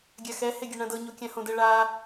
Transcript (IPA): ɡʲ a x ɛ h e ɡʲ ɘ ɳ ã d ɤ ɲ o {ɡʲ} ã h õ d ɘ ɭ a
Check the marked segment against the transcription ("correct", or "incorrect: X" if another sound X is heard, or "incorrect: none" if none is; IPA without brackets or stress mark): incorrect: kʲ